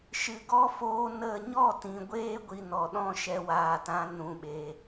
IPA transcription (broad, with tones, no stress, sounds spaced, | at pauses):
ʃ ɨ˨ ɡ ɔ˦ f oː˧ n ə˦˨ ɲ ɔ˦˨ t ĩ˨ ɡʷ eː˦ ɡʷ i˨ n ɔ˨ ɗ ɔ̃˦ ʃ ɛ˧ w aː˨ t ã˧ n ũ˨ ɓ e˨